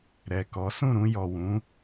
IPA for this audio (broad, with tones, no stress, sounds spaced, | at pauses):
ɾ ɛ˨ k ɔ˨˦ s ũ˦˨ ɾ ũ˧ j ɔ˨ w ũ˨˦